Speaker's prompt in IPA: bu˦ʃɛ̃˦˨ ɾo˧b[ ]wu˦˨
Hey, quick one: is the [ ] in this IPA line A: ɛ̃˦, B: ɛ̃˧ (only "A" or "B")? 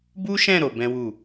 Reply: A